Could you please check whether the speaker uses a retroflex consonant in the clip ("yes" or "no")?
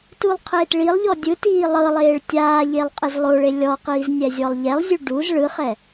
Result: yes